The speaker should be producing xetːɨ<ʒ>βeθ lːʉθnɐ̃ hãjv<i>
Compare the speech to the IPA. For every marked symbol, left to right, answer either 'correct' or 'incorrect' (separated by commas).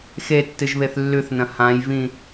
correct, incorrect